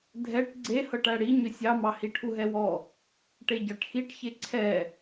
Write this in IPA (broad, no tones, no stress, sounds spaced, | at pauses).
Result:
dʱ ɛ ʈ ɡ͡ǀ e h ɤ ʈ æ ɽ i ɲ ʏ sʲ ɑ m ɑ h i ʈʰ u ɦ ɛ w ɔ | ʈ e ɟ ɑ ʈ x i ʈ ç e ǀʰ ɛ